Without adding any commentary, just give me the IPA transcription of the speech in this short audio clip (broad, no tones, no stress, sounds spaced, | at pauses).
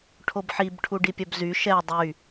ʈʰ o b ħ i b ʈʰ u ɖ i pʲ œ b z y ʃ ɛ dˤ y